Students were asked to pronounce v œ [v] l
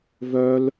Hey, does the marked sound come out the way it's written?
no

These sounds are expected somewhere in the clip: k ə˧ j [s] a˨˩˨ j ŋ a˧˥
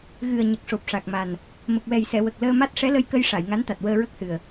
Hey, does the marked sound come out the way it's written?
no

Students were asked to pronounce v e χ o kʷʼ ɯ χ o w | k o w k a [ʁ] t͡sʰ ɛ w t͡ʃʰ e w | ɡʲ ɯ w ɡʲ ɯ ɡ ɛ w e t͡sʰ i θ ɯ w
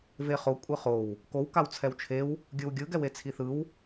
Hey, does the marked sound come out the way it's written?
no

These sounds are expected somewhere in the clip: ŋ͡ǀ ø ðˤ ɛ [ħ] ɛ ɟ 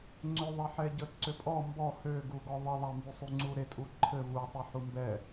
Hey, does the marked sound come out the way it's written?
yes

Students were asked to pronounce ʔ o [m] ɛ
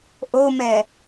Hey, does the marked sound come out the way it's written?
yes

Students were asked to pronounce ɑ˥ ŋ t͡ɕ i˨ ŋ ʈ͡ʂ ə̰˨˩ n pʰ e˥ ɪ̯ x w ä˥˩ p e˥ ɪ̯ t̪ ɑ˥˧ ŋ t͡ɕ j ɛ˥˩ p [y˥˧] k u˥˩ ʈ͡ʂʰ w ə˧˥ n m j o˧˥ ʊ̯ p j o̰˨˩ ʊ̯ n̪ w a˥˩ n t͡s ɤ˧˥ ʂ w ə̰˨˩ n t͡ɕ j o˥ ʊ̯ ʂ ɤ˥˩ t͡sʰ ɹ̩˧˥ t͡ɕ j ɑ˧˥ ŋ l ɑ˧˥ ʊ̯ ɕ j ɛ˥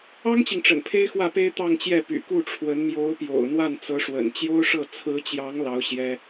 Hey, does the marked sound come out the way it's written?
no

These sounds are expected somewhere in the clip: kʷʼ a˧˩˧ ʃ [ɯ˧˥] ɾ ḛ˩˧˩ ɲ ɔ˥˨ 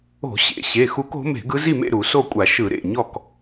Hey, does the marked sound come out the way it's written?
no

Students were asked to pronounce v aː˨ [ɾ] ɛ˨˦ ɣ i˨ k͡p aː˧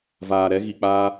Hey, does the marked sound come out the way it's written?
yes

